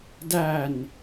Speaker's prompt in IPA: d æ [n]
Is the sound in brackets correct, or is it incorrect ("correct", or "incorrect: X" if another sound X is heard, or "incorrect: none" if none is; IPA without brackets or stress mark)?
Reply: correct